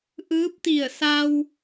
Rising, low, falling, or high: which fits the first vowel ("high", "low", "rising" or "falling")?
rising